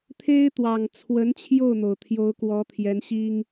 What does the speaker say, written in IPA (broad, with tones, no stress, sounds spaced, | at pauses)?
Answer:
t̪ʰ e˥ ɪ̯ t̪ w ɑ˨˩ ŋ t͡sʰ w ə˧˥ n t͡ɕʰ j o˥˩ ʊ̯ n̪ o˩ ʊ̯ t̪ʰ j o˧˥ ʊ̯ k w ɔ˧˥ t̪ʰ j ɛ˧˥ n ɕ i˥ ŋ